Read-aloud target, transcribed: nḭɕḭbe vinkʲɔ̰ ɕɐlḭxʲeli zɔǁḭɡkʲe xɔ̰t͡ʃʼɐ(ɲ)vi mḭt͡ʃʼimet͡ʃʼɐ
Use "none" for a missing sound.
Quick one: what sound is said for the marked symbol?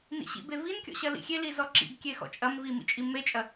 m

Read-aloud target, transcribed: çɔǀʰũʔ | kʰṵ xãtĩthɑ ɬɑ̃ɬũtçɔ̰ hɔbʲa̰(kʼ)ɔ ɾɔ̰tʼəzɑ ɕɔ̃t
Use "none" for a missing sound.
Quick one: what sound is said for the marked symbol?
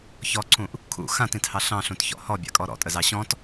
kʼ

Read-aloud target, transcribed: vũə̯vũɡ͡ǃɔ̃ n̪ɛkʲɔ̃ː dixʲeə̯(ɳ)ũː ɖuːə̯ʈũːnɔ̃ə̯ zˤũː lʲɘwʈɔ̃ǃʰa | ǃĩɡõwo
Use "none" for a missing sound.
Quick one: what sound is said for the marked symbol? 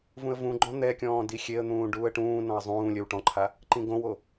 n̪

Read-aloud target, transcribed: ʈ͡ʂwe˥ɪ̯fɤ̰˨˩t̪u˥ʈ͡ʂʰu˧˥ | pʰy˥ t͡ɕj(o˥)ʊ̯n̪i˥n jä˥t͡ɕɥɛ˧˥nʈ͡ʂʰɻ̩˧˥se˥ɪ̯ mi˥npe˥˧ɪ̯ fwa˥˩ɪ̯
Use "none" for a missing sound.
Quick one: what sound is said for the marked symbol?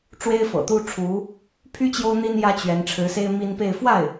o˥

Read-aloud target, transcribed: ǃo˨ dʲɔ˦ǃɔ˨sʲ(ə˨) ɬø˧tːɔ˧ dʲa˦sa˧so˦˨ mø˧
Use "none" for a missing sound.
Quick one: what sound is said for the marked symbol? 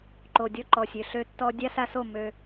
ø˨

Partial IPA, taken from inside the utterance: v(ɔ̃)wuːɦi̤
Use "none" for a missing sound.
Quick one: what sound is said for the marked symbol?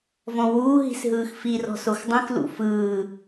ɔ̃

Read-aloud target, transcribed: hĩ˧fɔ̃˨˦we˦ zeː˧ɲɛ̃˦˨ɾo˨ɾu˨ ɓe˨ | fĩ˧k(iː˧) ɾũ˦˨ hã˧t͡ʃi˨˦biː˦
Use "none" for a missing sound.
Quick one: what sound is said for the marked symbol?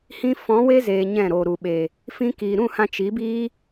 iː˨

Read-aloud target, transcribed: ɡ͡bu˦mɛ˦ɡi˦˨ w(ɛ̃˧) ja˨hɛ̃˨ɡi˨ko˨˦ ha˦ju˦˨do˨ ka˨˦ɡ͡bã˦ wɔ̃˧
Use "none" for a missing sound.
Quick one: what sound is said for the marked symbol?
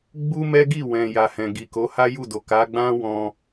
ɛ̃˨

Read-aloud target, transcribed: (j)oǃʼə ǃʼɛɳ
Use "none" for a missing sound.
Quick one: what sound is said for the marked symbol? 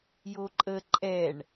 j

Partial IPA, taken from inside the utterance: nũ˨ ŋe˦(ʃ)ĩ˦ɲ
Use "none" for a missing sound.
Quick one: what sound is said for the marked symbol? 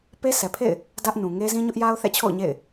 z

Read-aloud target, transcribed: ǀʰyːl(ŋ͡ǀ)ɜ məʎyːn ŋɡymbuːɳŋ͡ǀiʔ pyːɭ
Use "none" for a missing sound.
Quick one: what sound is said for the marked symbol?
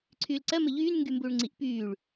ǀ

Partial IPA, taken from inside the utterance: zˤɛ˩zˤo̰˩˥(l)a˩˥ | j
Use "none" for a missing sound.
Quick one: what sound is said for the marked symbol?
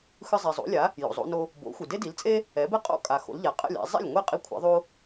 lʲ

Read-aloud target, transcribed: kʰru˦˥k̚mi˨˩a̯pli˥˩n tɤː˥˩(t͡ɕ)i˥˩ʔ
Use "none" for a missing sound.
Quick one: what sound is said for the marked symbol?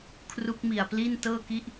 k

